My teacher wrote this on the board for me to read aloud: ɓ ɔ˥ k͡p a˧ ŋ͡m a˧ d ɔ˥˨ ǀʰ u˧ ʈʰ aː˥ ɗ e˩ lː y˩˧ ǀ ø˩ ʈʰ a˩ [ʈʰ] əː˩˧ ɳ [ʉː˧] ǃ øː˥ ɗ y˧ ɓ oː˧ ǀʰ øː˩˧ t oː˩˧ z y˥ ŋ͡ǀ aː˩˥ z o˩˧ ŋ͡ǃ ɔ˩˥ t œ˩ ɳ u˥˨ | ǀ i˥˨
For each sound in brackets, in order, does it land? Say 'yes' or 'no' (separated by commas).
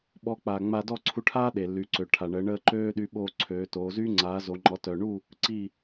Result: no, no